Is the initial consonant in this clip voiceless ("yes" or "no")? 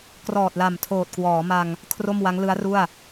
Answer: yes